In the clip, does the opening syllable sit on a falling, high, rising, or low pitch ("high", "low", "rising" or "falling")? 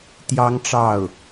high